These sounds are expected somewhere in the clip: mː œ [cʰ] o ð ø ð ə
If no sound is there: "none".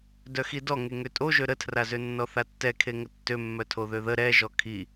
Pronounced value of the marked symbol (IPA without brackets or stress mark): tʰ